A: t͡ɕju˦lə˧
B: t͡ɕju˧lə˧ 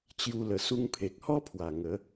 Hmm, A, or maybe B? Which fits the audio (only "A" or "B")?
A